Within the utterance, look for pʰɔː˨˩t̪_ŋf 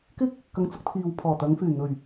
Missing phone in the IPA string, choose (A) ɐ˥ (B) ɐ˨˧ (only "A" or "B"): B